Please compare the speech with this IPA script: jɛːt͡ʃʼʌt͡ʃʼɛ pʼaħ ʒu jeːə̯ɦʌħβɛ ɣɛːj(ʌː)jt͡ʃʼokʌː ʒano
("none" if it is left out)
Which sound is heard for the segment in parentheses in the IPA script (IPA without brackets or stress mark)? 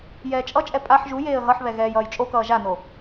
ʌː